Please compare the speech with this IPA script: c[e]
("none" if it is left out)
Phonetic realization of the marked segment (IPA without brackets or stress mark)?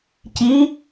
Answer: i